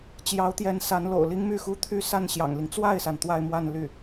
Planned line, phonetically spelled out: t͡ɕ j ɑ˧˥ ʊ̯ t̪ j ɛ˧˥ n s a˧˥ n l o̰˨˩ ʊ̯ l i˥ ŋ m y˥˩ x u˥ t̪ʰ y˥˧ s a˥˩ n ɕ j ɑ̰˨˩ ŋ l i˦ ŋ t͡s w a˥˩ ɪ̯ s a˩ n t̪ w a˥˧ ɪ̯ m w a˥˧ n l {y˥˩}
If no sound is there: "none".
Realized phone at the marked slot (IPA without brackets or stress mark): y˥˩